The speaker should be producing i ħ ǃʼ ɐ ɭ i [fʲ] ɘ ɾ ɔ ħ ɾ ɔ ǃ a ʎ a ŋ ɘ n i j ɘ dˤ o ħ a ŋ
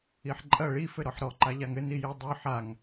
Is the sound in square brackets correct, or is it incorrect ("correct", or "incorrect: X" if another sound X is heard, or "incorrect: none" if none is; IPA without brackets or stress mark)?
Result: incorrect: f